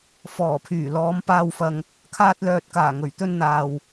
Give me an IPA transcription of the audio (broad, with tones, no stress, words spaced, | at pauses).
fɔː˨˩pʰyː˨˩lɔː˨˧m paː˨wfɐ˨ŋ | kʰaː˧t̚lœː˨t̚kaː˨˩ ŋɵ˨˩ɥt̪ɵ˧nn̪aː˨w